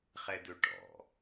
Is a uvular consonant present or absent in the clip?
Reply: present